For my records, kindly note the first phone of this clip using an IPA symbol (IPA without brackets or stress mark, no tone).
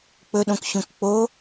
k͡p